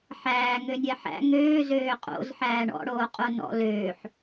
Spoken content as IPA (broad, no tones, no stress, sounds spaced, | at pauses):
ħ æː ŋ ø nʲ ɛ ħ æ̰ ŋ øː z øː qʼ o̰ z ħ æː ɳ ɔ̰ ɽ oː qʼ o n ɔ̰ l øː ħ